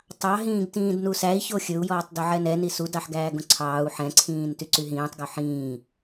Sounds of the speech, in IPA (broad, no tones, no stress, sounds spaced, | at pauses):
tˤ ɑ ɦ ĩː ɡ t ĩː d n u s æ i̯ ç o xʲ ɵ u̯ j ɔː tˤ d ɵ ʕ ɛ n ɛ n i s u d ɑ ħ ɡ æː ɡ õ ǀʰ ɑː u̯ ħ ɛ̃ ǀʰ ĩː n t y ǀ y ɦ ĩː tˤ ɡ o ħ ĩː